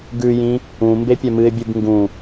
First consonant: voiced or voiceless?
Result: voiced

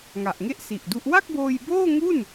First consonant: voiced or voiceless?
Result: voiced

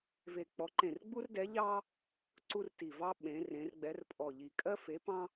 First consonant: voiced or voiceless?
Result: voiced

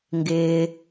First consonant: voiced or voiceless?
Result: voiced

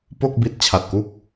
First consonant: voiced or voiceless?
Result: voiceless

